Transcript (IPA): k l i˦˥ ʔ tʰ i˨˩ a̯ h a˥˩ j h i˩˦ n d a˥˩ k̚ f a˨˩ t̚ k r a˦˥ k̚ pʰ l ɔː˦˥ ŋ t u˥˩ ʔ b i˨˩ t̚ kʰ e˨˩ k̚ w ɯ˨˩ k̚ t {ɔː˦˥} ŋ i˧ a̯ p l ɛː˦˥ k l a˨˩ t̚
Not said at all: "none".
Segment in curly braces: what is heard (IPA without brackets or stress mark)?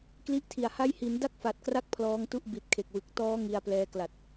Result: ɔː˦˥